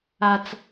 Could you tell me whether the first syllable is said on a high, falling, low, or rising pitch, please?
low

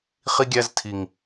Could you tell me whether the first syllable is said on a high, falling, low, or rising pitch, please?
high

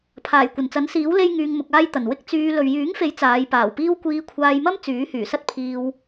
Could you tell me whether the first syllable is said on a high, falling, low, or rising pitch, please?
low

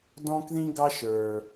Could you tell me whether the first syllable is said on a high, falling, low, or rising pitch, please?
high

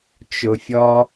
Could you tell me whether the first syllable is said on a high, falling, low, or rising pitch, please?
low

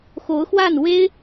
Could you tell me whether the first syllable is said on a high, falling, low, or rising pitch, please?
rising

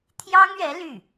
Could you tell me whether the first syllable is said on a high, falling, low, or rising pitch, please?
high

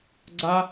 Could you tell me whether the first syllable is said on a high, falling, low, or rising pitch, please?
high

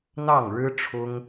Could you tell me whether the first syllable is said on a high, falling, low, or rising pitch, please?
falling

